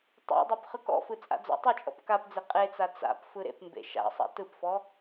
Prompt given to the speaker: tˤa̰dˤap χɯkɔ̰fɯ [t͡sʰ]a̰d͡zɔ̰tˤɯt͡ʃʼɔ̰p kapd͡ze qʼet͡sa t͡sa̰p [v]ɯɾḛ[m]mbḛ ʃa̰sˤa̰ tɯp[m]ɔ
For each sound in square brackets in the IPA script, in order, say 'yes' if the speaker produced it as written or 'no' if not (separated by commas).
no, no, no, no